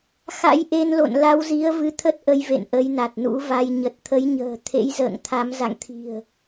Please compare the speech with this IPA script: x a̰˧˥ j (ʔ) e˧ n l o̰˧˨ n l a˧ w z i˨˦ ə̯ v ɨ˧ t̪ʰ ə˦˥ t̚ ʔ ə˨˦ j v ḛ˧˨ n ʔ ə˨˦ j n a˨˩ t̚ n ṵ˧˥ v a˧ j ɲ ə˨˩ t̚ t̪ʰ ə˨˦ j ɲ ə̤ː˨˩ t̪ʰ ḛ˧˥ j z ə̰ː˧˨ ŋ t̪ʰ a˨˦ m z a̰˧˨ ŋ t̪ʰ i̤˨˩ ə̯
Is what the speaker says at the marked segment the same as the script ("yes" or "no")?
yes